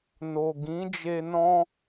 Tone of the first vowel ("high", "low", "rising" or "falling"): low